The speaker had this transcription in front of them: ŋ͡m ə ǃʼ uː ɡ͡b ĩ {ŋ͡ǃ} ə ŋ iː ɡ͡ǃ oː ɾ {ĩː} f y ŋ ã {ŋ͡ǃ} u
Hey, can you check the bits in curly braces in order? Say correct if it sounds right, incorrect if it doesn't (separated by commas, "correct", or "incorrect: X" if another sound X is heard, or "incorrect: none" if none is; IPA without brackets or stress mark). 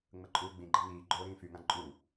incorrect: ɡ͡ǃ, correct, incorrect: ǃʼ